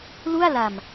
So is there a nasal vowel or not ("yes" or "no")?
no